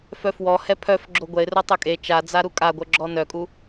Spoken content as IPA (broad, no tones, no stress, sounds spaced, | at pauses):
f œ f w ɔ h ɛ pʰ œ f ɡ͡ǁ o ɡʷ ɛ ɪ̯ r o tˤ ø kʼ e t͡ʃ a d͡z a ɾ u kʼ a ɡʷ œ ɡ͡ǁ ɔ n œ kʼ u